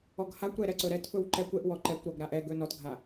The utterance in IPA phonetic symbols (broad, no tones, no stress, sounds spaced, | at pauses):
ɔ ɡ h a kʷ ɾ ɛ ɾ ɛ ǀ ɵ ɾ ɛ t f ɵ w ǃ ɛ kʷ ɛ ʔ w ɔ ǃ ɛ kʷ ɾ ɔ ɡ ɾ a ʔ ɛ ɡ ɵ n ɔ t ɡʱ a